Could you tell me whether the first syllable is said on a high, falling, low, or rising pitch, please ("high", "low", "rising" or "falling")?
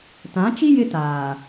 rising